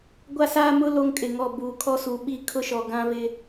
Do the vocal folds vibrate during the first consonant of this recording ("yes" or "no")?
yes